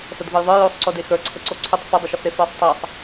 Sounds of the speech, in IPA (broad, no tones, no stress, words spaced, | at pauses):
sədvəjðˤə˞ josˤǀode xə˞ǀʰəǀo ǀʰʊtˤ fʊdˤəʃəfɾe fə˞sˤtˤɑsˤ